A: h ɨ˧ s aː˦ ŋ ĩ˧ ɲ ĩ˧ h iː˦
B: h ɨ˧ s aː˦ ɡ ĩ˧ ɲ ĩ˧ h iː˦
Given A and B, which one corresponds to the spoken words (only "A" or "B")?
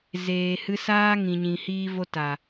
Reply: A